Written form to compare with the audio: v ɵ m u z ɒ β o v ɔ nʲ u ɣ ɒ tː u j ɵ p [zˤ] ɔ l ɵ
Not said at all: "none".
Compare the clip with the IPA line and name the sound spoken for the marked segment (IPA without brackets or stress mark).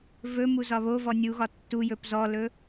z